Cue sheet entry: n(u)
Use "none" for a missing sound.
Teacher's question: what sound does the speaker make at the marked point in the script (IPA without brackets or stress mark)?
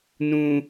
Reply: ũ